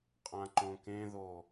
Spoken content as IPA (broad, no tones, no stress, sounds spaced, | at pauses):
qʼ ã ǃ õ k ẽ ð o